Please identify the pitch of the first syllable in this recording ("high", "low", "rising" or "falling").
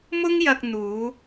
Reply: high